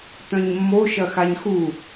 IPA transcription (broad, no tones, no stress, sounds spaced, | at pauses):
t̪ œ̃ ɲ mː o ʃ ɐ x a ɲ x u